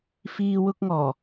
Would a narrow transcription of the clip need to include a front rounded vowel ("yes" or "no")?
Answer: no